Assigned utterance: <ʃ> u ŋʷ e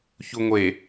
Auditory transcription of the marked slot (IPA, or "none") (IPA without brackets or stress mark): ç